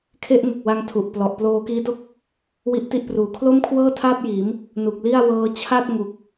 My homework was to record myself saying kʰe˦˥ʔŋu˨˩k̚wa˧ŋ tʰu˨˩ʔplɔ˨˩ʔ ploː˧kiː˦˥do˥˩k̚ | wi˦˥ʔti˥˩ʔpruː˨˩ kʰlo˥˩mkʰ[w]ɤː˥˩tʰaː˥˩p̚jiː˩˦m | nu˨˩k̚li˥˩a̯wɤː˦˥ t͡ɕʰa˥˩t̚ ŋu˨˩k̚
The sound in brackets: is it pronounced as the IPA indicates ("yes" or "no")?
yes